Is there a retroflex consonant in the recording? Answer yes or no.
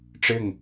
yes